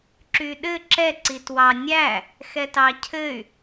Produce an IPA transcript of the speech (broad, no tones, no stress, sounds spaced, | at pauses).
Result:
ǁ y ɗ ɘ ǁ ɛ ǀ i t w ɑ nʲ æ | x ɛ t ɑ cʰ ɘ y̯